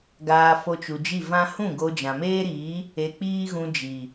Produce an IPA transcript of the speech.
ɡ aː˧ f o˧ t͡ʃ u˨ d͡ʒ i˦˨ v ã˦ h ũ˦˨ ɡ o˧ d͡ʒ ã˨ m eː˦ ɾ iː˨˦ | e˧ k͡p iː˦ ɣ ũ˧ d͡ʒ i˨

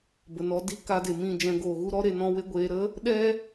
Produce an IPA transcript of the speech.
b ə˨ n ɔ˧ d i˦ k a˧ d e˨ m ĩ˦˨ d͡ʒ ɛ̃˧ ɡ oː˨ ɣ u˦ ɾ ɔ˦ ɾ e˧ n ɔ̃˦ w e˦ ɡʷ eː˧ ɾ ə˦ | ɗ ɛ˦

